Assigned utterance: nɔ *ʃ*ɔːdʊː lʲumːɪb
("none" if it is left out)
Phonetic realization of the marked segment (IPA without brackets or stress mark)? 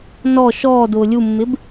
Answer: ʃ